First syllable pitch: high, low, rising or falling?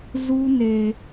high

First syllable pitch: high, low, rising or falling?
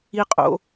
high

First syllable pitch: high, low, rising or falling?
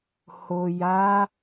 low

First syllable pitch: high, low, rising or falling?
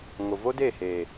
low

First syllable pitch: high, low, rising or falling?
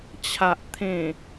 low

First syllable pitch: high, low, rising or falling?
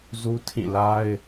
high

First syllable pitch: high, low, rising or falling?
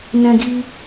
high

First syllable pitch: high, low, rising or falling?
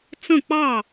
falling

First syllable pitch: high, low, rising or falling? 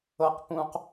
rising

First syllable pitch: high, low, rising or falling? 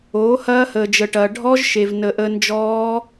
rising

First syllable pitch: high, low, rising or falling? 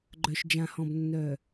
low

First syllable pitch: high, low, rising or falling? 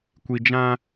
low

